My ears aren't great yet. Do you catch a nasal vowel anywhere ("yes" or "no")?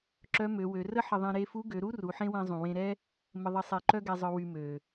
yes